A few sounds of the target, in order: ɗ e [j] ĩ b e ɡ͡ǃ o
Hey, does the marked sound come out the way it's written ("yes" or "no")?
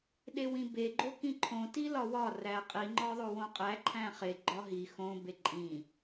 no